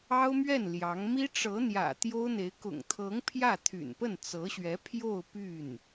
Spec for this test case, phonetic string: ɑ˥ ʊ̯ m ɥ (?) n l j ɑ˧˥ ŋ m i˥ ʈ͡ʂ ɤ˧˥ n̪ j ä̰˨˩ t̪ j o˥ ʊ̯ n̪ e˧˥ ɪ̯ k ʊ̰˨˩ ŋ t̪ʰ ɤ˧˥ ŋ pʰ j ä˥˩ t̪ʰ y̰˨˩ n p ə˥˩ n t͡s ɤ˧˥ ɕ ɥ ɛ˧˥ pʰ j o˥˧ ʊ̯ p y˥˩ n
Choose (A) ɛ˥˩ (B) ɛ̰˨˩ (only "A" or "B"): A